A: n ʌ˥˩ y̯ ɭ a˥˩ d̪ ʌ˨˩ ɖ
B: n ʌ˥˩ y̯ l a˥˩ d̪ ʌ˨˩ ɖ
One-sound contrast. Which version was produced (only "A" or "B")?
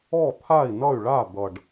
A